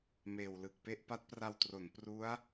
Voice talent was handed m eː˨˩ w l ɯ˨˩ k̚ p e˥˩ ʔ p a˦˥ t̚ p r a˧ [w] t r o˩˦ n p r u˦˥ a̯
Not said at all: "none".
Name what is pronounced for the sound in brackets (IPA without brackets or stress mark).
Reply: w